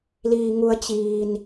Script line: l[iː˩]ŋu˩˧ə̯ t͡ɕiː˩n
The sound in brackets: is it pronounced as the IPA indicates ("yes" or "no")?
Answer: yes